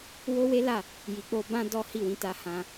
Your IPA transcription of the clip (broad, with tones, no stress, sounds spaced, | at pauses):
w o˦ w e˦ l a˦˨ | j i˨ k͡p o˧ b ã˦ d ɔ˦ h i˦˨ w ĩ˨˦ t a˧ h ã˧